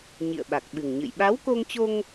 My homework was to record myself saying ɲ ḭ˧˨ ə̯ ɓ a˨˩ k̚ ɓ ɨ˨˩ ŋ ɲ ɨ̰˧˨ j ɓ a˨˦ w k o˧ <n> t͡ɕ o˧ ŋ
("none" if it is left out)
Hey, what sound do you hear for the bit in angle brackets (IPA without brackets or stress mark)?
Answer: ŋ